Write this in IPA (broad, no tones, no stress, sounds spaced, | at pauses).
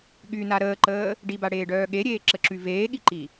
ɠ y n a ɾ əː ǃ əː | ɖ i b a ɽ eː ɖ œː ɠ e ɾʲ eː ǁ ə ǁ y v eː ɠ i ǃ i